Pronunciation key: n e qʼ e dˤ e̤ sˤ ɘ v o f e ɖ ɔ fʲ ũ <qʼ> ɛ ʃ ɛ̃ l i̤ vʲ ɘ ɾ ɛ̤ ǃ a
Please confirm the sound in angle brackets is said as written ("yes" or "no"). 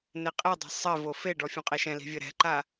yes